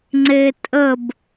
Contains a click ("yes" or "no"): yes